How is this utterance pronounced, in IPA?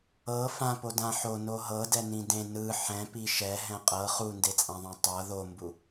ɤ fãpodã ħono ɦɤdɛnĩ dẽ nɯ ħɛ̃pi ʃɛɦɛ̃ qʼɤ χundet͡sʼãðˤã tˤɤ ðombu

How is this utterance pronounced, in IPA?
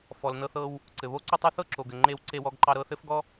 fɔ˩lnɤ˧θɤ˧w | ǀɘ˩βo˥ǀo˥tˤɤ˥ θɤ˥ǁo˩ɡɘ˩ ŋ͡ǃe˧w ǀe˧wɔ˧ɡǃɑ˧ɾɤ˧ θɘ˥fɡɔ˥

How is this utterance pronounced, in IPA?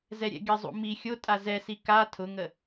zɛɾʲɛ̰ɡʲəzˤṵ mi xʲotʼa zɛsi ka tʰʊŋə

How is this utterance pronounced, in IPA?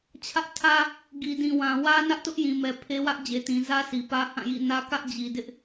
t͡ɕʰä˦ʔ tʰä˦ | ɡi˨dĩ˨wã˨ wä˦nä˦ʔ tʊ˦ʔjĩ˨mɛ˨ pʰe˦wä˦ʔ d͡ʑe˨tĩ˨ zä˦ si˨pä˦hã˦˨jḭ˦˨ nä˦kä˦ʔ d͡ʑi˨dɪ˦ʔ

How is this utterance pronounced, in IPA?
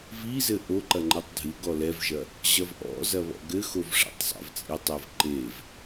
vizɘ ʔoǃɐ ŋ͡ǃɛtˤdʱɨɡɔ lɛvʒɐ | ʑɐvʔɔ̰zɐ βɔ̰ɡɘxov ʂa̰tˤsˤa̰vt͡sʼitˤɨv ǃev

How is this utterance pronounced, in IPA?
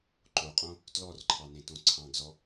ǃoqʼõ | tlɔrǃʰɑnẽtõ ǀʰɑ̃ɡzɔ

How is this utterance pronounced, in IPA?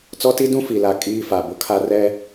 t͡sɔ˦ti˦ dũ˦fi˨la˨ kʼiː˦fa˨bʊ˦ kʰa˦rɛ˦

